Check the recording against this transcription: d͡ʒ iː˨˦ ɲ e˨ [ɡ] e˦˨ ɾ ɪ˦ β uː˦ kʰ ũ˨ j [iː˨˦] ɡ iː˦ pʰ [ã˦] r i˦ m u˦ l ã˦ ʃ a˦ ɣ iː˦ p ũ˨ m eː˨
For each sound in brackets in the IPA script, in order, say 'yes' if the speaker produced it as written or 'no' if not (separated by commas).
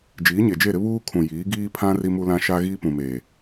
no, yes, yes